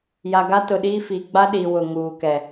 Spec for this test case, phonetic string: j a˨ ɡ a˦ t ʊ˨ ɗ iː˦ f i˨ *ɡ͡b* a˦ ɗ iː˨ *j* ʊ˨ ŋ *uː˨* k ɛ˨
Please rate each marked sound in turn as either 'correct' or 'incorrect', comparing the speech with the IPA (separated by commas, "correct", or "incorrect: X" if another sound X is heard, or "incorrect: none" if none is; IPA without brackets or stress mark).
correct, incorrect: w, correct